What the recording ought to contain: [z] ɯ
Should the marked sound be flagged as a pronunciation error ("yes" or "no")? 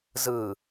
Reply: no